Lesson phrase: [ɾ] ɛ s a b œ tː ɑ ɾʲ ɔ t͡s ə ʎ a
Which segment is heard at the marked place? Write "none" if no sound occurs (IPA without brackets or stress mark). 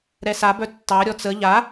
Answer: ɾ